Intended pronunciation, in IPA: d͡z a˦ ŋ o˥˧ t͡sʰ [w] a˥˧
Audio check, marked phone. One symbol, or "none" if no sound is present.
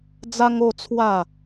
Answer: w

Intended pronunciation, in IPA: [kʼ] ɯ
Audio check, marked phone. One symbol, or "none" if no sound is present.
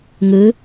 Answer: ŋ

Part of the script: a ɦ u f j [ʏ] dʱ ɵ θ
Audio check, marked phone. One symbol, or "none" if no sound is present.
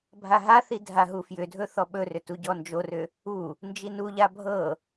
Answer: ʏ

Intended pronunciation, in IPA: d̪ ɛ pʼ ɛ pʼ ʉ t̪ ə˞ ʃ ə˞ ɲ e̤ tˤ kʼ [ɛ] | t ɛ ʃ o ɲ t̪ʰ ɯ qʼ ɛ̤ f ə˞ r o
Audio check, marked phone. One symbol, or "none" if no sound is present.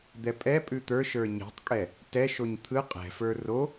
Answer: ɛ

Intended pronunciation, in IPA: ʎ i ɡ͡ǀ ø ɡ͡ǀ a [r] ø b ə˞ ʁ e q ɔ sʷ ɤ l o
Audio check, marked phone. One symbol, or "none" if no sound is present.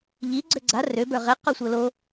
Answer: r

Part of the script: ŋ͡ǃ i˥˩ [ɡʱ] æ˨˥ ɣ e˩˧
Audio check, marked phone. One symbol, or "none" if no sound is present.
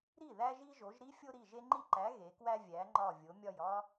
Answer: ǃ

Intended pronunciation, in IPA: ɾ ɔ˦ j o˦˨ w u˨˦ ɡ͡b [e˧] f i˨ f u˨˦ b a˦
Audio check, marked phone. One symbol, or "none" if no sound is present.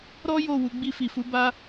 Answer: i˧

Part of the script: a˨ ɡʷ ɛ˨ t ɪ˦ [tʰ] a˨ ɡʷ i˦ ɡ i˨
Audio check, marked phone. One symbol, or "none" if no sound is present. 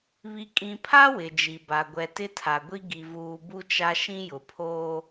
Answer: tʰ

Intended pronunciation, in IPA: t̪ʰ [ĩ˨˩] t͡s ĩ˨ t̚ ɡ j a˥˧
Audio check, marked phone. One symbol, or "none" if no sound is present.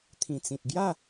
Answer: ĩ˨˩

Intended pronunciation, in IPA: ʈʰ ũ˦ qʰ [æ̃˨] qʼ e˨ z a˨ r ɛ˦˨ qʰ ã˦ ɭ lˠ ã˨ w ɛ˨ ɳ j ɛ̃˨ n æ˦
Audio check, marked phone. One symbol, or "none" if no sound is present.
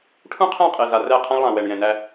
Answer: æ̃˦˨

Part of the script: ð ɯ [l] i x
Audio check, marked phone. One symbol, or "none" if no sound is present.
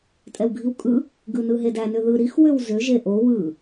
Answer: ɾ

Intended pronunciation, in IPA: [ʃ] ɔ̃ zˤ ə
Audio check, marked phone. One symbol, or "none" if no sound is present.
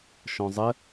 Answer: ʃ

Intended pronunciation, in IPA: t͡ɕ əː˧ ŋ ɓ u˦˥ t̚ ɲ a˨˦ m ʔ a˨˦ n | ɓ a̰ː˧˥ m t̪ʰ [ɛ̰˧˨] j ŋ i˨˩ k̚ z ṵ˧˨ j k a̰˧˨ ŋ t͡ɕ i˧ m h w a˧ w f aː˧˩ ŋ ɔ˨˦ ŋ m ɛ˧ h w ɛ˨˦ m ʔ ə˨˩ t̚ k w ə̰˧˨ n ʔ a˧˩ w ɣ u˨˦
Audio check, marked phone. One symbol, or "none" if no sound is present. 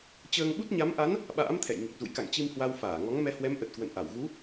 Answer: ɛ̰˧˨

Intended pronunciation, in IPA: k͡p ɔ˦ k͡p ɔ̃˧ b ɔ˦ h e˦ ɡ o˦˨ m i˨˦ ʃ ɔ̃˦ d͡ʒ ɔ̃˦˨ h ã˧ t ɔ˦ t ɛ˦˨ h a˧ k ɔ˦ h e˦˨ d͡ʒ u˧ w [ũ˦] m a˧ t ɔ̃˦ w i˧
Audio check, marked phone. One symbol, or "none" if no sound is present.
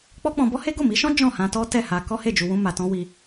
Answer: ũ˦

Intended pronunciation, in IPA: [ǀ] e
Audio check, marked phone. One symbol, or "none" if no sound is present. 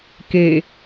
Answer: k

